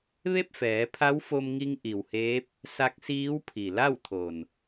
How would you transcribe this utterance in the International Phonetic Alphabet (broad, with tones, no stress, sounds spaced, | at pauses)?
ʋ e˥˨ p̚ f ɛː˩˧ pʰ a˧˥ w f o˧ m ŋ i˧ ŋ ʔ i˩ w h eː˧˥ p̚ | s a˧˥ k̚ s iː˧˥ w pʰ i˩ l a˥˨ w t̪ʰ o˩ n